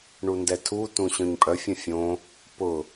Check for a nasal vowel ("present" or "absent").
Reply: present